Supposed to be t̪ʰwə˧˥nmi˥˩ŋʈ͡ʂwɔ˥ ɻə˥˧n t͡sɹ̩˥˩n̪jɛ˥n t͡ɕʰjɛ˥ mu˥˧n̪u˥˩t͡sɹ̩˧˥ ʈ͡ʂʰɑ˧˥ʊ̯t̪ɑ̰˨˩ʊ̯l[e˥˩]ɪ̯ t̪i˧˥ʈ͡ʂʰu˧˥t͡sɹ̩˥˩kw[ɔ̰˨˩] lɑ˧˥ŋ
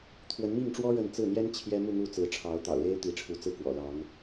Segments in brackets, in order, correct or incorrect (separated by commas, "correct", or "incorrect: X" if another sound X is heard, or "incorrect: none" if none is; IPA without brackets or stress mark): incorrect: e˥, correct